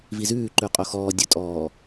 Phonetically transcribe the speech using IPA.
v i z ʉː ǃ ʉ qʼ o x ɔː dʲ ɵ tʼ ɔː

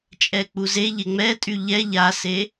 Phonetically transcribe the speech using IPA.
t͡ʃʼ ɛ k͡p u z e ʎ e ŋ͡m ɛ tʼ y ʎ ɛ ʎ a s e

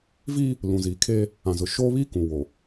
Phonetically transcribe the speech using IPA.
v iː˦ | l ũ˨ z iː˨ kʰ eː˦ | ã˨ z ʊ˨ ʃ oː˦ β iː˦ k ũ˨ w o˨

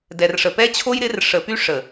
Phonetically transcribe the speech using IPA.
d ɛ˨ r ʂ ə˨ p ɛ˦ t͡ɕʰ o˦ j ɾ ɪ˨˦ r ʂ ə˨ p y˦ ʂ ə˨

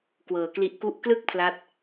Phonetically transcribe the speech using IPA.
k w ɤː˩˦ k l i˦˥ ʔ k u˥˩ ʔ k l ɯ˥˩ k̚ pʰ l a˥˩ t̚

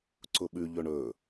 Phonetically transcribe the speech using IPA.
ǀ ʊ ɓ ʉ ʎ ɵ ɳ ɵ

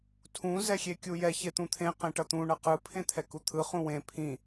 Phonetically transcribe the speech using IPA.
tʰ ũ z ɛ xʲ e kʲ u j ɛ ç e t̪ ũ t̪ʰ ẽ q ẽ ʈ ʌ t̪ ũ ɳ ʌ q ɯ pʰ ẽ t̪ʰ ɛ k u t̪ʰ ɯ χ ũ w ẽ pʰ ĩ

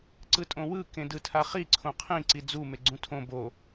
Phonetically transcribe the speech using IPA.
ǀ ɯ tʼ õ w ɯ k ẽ d ɯ tʰ a χ i ǀʰ õ qʰ ĩ ǀ i d͡z u m e ɡ͡ǀ ũ tʰ õ b o

